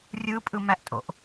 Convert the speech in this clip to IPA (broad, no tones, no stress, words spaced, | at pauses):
rʲɯpʼɯmæʔtʼo̰ʔ